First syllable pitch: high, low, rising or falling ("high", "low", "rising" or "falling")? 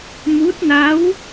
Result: rising